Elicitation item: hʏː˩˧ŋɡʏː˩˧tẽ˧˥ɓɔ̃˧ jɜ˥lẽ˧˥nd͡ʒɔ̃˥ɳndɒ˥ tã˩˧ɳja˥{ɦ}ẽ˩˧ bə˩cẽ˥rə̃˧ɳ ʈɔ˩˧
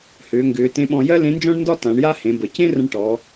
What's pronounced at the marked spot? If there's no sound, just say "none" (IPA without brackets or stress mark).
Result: h